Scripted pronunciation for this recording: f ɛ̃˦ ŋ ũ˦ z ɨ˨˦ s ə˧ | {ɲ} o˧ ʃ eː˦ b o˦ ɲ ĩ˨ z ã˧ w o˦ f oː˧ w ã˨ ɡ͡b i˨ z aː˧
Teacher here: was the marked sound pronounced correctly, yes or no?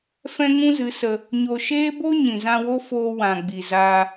yes